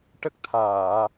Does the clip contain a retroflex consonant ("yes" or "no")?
yes